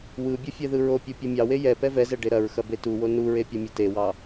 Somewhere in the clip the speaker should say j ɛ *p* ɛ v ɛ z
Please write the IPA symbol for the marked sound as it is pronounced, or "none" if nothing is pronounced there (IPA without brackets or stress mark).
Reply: p